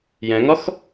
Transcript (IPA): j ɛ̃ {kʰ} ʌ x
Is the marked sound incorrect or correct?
incorrect: ŋ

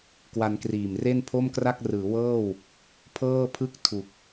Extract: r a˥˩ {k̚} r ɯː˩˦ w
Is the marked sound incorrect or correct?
correct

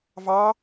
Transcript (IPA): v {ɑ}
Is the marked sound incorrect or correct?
correct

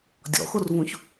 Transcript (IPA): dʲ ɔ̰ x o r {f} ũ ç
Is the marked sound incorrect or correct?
incorrect: v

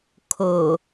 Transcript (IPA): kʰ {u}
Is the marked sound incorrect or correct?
incorrect: o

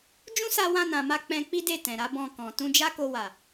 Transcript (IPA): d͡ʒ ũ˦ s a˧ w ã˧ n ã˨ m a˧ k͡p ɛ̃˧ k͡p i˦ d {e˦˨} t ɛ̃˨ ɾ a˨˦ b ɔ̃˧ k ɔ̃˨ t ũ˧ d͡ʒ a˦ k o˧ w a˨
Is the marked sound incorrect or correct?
correct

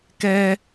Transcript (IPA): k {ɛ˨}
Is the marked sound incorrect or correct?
incorrect: ɛ˦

